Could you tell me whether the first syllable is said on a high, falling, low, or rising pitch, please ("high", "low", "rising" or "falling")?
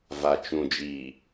low